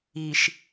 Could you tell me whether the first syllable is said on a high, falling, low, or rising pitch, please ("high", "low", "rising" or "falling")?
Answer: low